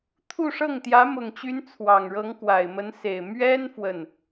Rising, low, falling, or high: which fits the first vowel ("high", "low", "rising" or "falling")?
falling